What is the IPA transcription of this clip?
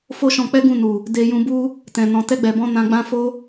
f o˦ ʃ ɔ̃˧ k͡p ɛ˦ ɡ ũ˦˨ n u˨ | d e˧ j ũ˧ b u˦ | t ɛ̃˨ n ɔ̃˨ t ɛ˧ ɡ͡b ɛ˨ b ɔ̃˧ n ã˧ ɡ͡b ã˦ f o˦

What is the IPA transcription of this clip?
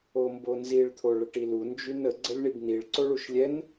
o m b o n z i ɭ t̪ʰ o ɭ ə ʈ i l u n d͡ʒ y n ə ɡ͡ǀ ə lʲ ɳ i b n i ɭ ǀ o ɭ u ʃ lʲ ɛ n

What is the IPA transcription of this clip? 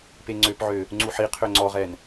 p e ŋ͡ǀ ø p ʕ ø | ŋ͡ǀ u ħ i qʰ ø ŋ͡ǀ ɔ ʁ ɛ n

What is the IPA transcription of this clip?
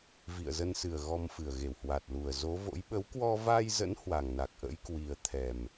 v ḭ˧˨ ə̯ z ə˧ n s ɨ˨˩ ə̯ ɣ ɔ˧ m f ɨ˨˩ ə̯ ɣ e˧˩ w h w a˨˩ t̚ l u˨˩ ə̯ z o˨˦ v o̰˧˥ j ɓ ə˨˦ w k w ɔ˧ v a˧ j z ə̰˧˥ n h w a˨˩ ŋ n a˨˩ k̚ ʔ ə̰˧˥ j k w i˧ ə̯ t̪ʰ ɛ˨˩ m

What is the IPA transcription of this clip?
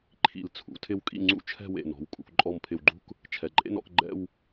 ǃʰ ḭ˧˩ l t͡sʰ ṵ˩˧ tʰ ɪ˥ w kʼ ḭ˥˧ ŋ͡ǀ ṵ˥ t͡ʃʰ ɛ̤˥˧ w ḛ˧˩ n ɔ̤˩˧ w kʼ ṵ˧˩ k ǃʼ ɔ˧˩ m pʰ ɪ˧˩ w ɡ͡ǃ ṳ˥ k | t͡ʃʰ ɛ˩˧ ǃʼ ḛ˥ n ɔ̰˧ k ɡ͡ǃ ɛ̰˥˧ w

